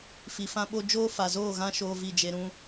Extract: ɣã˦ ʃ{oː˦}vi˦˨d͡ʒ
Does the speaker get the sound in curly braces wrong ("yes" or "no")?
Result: no